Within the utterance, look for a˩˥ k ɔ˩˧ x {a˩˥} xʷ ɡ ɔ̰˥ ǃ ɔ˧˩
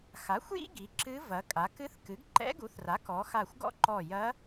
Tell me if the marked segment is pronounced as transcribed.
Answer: no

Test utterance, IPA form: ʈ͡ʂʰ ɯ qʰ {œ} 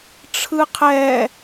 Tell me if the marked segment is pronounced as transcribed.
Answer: no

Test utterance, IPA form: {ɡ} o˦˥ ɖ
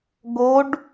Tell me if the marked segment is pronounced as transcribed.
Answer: yes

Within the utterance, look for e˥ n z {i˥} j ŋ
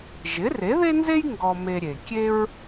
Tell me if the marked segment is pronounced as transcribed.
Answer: no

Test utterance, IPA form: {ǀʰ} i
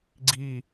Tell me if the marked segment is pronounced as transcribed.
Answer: no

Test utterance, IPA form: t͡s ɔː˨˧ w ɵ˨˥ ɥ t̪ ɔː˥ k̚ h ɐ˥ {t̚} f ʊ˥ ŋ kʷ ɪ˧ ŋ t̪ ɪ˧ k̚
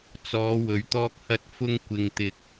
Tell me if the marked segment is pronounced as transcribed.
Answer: yes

